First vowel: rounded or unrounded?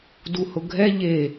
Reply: rounded